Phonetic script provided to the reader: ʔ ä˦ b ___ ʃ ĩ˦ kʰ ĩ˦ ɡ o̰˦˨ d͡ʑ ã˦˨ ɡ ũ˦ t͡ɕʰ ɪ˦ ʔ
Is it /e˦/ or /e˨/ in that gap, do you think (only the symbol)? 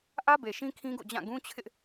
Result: e˨